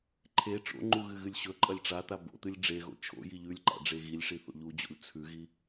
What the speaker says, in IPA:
ǃʰe ʈ͡ʂo̰ŋ͡ǃu ɣɨɣɨlʲɕɵǃʼɐlʲ ʈ͡ʂat̪a bo̰t̪ɨlʲ ɖ͡ʐeɣo̰ t͡ʃʰo̰ jiʎʉlʲǃa̰ ɖ͡ʐeɣilʲʂi θo̰ʎud͡ʑo̰lʲ t͡sʰʉɣi

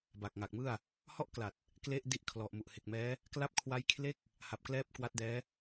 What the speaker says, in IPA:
ba˨˩k̚ŋa˨˩k̚mɯ˥˩a̯ | hɔ˥˩ʔkla˨˩t̚ | kle˥˩ʔ di˦˥ʔkʰlɔ˨˩ʔmu˨˩ʔ he˨˩k̚mɛː˦˥ | kla˦˥p̚kʰwa˦˥j kʰle˥˩k̚ | ha˨˩p̚klɛː˦˥p̚ kwa˦˥t̚dɛː˦˥

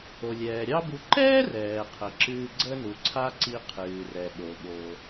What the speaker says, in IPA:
o˩lʲɛː˩ɾʲɑ˥bu˧ ǃɛː˥rɛː˩qʰə˩ ǁɨː˧ ɡ͡ǀə˥nu˩ǀʰa˥ǀi˧ qʰɨː˩rɛ˩ɓo˩ ɓo˩

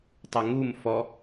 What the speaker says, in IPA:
tˤɛŋum fɔ

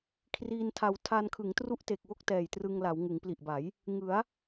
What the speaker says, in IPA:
kʰriː˧ntʰa˧w tʰa˧nkʰɯ˩˦ŋ tru˥˩ʔte˨˩k̚wo˥˩k̚ tɛː˨˩jtrɯ˧ŋla˩˦w ŋɯ˩˦ŋpli˨˩ʔba˩˦j | ŋɯ˩˦a̯

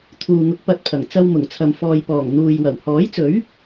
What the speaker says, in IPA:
t̪ʰuː˨ŋʊ˨˥k̚pɐ˨˥t̚pʰɐ˨˩ŋ t͡sɐ˧wmʊ˨˩ŋt͡sʰɐ˨m fɔː˨jpɔː˨˩ŋ n̪uː˨jwɐ˨˩w hɔː˨˥jt͡sɵ˨˥ɥ

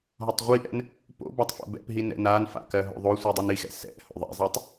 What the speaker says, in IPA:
ɦɒtˤʁʷiʔɛ̰n | po̰bɒtˤ fo̰bɛ̰pɦi nɛ̰nanfa̰ kɜɦo̰ðˤosʷi dˤinixɛ̰ sɛ̰ho̰ ðˤɛ̰zˤitˤ

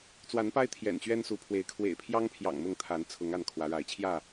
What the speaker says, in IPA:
t͡swa˨˦npa˦ɪ̯ t̪ʰjɛ̰˨˩n t͡ɕɥɛ˦nsu˨˦pʰwe˨˦ɪ̯ kʰwḛ˨˩ɪ̯pʰjɑ˦ŋpʰjɑ̰˨˩ŋ mʊ˥˨ŋt̪ʰa˨˦n t͡sʰʊ˨˦ŋa˥˨n kʰwä˨˦ɻa˨˦ɪ̯ t͡ɕʰjä˥˨

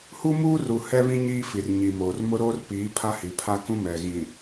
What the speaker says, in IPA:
hu˦muː˦ru˨ hɛ˦βĩ˦ ɲiː˦fi˨rɲi˨moː˨r mʊ˦ɾoː˦rpiː˨˦ pʰa˦hi˨pʰa˦kũ˦ mɛ˨ ɣĩ˨

